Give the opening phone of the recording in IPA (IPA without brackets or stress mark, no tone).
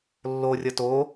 lː